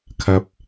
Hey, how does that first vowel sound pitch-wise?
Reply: high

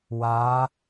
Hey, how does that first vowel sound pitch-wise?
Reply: rising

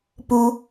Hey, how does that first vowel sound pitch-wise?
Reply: high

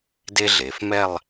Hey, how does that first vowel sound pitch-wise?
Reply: high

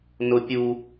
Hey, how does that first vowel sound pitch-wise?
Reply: high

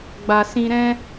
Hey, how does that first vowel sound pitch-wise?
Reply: low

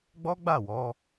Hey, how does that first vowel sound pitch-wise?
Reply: high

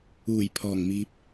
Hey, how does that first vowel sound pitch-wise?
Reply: low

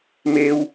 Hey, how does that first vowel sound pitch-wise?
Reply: high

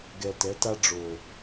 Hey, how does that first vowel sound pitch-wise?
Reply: low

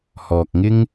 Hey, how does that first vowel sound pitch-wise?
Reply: low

